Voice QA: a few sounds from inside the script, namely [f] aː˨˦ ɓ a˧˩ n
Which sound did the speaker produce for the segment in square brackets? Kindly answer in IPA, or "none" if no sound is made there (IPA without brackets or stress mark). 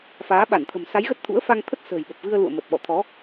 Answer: f